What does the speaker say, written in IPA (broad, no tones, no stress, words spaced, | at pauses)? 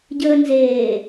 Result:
ɟəːnzeː